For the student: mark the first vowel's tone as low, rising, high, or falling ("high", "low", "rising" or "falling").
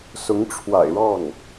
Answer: rising